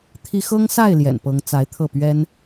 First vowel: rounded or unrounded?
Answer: unrounded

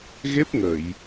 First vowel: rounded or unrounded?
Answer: unrounded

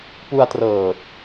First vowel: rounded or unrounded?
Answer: rounded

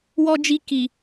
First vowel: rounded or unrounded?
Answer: rounded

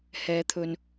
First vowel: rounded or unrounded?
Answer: unrounded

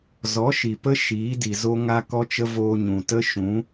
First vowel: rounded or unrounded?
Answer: rounded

